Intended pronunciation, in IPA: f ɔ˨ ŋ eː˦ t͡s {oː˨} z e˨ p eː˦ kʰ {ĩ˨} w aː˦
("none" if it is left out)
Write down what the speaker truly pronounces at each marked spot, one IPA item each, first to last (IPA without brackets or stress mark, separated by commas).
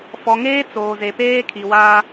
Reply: oː˨, i˨